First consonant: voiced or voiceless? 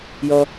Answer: voiced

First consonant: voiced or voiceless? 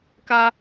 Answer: voiceless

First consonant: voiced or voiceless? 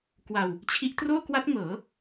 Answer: voiceless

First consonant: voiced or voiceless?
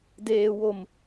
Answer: voiced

